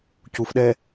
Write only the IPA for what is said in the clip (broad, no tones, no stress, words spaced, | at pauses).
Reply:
cufɗɛː